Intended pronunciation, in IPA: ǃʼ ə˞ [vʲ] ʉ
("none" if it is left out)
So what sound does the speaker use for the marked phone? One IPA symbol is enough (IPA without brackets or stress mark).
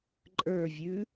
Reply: vʲ